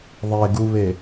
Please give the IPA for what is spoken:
ðˤ e ɡ u β e

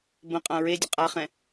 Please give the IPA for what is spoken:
b ə̃ qʼ ã ɹ e dʲ ə qʼ a χ ɛ̃

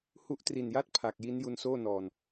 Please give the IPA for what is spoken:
h u˦˥ ʔ t r i˨˩ n j a˥˩ t̚ pʰ a˨˩ k̚ j i˦˥ n j u˧ n s oː˥˩ n ɔː˨˩ n

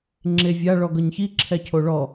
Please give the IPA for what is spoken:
ŋ͡ǁ e vʲ a ɭ ɔ ɡ ɤ ɲ ç i ǁʰ ɛ cʰ o ɭ ɔ

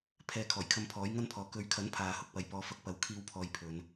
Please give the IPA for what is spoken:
pʰ ɛː˨ kʰ ɔː˨˩ j kʰ ɐ˨˧ m pʰ ɔː˨˥ j ŋ ɐ˥ n pʰ ɔː˨ k ɵ˨˧ ɥ kʰ ɐ˨˥ n pʰ aː˨ h ʊ˨ k̚ p ɐ˨ j p ɔː˨ f ɐ˧ k̚ p ɐ˨˥ w kʰ iː˥ w pʰ ɔː˧ j pʰ ɵ˨˧ n

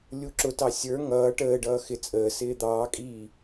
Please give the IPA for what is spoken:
lʲ u ǁ ʊ t ɑ sʲ ə˞ ŋ ʌː ʈ əː ɖ ʌː x ɪ t͡sʼ əː s ɪː d̪ ɑː kʼ iː

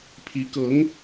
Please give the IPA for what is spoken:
pʰ i˧˥ k ɤ˧˥ ŋ

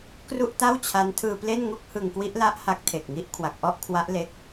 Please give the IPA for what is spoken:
k r u˥˩ ʔ t a˥˩ w t͡ɕʰ a˦˥ n tʰ ɯː˧ p l e˥˩ n ŋ u˥˩ k̚ h ɯ˧ ŋ k w i˦˥ ʔ l a˦˥ ʔ h a˦˥ k̚ tʰ e˨˩ k̚ ŋ i˦˥ ʔ kʰ w a˨˩ k̚ ʔ ɔ˥˩ ʔ kʰ w a˦˥ ʔ l e˦˥ k̚

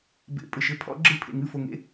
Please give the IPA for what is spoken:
b ḛ˨ pʼ ɘ˨ ʃ ɘ˥˨ pʰ ɔ̰˦˥ ɡ͡ǁ ɨ˥˨ pʰ ḛ˨ ŋ ɨ˥˨ f o˨ ŋ ḛ˦˥

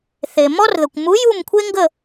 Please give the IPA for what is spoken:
θ e˨ m ɔ˥ r ð ə˨ kʷ m u˧˥ j u˥˧ m kʷʰ e˥ ŋ ɡ ə˥˧

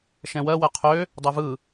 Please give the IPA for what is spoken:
ʃ ɛ̃ w ɜ w ɛ qʰ ø | dˤ ɛ v ɯ

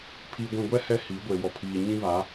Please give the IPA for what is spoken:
pʰ iː˨ ɡʷ ĩ˨ ɡʷ ɛ˦ h ɛ˦ h i˨˦ ɡʷ e˨ w ɔ˨ pʰ iː˨ ɲ ĩ˦ β a˨˦

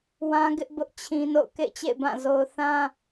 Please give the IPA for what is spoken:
w ã˦ ɡ ɪ˦ ʔ b ʊ˦ ʔ t͡ɕʰ ĩ˦ n o̰˦˨ ʊ̯ k ḛ˦˨ ɪ̯ t͡ɕ ḛ˦˨ ɪ̯ b ã˦˨ z o˦ ʊ̯ θ ã˦

